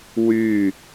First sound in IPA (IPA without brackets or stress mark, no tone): w